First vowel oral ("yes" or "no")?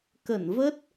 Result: yes